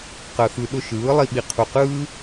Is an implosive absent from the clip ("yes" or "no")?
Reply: no